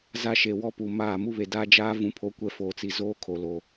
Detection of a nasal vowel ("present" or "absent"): present